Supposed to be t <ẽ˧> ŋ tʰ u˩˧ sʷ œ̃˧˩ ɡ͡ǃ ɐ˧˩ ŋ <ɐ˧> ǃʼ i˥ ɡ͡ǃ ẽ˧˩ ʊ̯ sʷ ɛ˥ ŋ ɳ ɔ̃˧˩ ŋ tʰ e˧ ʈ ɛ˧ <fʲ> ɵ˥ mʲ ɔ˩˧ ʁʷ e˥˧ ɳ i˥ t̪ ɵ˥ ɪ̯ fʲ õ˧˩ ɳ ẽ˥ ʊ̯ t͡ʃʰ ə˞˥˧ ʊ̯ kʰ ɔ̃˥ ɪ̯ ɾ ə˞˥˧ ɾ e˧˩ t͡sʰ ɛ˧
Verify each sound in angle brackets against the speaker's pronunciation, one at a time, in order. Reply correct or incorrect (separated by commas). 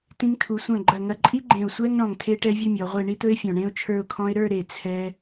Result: incorrect, correct, incorrect